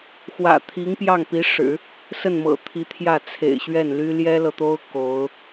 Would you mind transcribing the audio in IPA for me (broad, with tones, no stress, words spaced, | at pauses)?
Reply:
xwä̰˨˩t̪ʰi˧˥ŋpjɑ˥˩ŋ pi˧˥ʂɻ̩˨˩˦ | sə˥˩nmɤ̰˨˩t̪ʰi˧˥t̪ʰjä˥˩ t͡sʰḛ˨˩ɪ̯ɕɥɛ˥˩nly˥ ljɛ˥lɤ˨t̪o˥ʊ̯ ko˧˥ʊ̯